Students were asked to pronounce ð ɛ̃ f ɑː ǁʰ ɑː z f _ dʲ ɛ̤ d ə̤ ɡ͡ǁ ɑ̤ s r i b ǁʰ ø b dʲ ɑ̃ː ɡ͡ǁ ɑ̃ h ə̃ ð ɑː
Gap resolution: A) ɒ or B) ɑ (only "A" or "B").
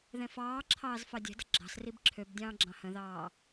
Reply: B